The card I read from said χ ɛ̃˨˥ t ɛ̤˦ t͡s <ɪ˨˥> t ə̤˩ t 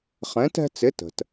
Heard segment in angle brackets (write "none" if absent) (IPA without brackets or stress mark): ɪ˨˥